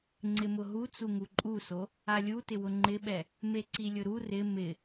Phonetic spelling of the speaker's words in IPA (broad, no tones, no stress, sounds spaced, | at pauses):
ŋ͡ǀ ɪ m ʊ ɦ u t͡s u ŋ u ǃʼ u s o | a lʲ u t ɪ w ʊ ŋ͡ǃ ɪ ɓ ɛ | m e ǀ i lʲ ʊ ɾ u r ɪ m ɪ